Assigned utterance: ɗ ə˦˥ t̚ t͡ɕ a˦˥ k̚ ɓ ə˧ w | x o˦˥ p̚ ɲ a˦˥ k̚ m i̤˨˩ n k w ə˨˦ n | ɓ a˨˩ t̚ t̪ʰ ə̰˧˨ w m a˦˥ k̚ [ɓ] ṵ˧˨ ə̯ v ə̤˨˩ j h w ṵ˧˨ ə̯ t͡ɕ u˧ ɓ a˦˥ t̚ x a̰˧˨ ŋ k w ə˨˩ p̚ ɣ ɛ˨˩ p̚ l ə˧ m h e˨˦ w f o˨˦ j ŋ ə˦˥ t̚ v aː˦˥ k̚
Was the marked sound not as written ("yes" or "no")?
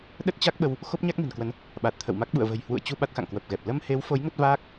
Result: no